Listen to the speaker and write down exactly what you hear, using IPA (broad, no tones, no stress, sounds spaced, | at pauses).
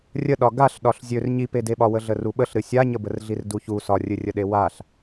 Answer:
rʲ ə ɗ ɒ ɡ a ɬ ɗ ɒ ɬ zʲ ø r ɲ i p e d e ɓ ɒ w ə ɮ ə r u ɓ ə ɬ ɾ ɨ sʲ a ɲ ə b ə r ɮ i r d u ç u s ɒ rʲ ɨ rʲ ə ɗ e w a ɬ